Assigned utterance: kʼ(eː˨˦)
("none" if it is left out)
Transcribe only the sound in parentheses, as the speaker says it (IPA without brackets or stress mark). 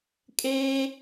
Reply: eː˦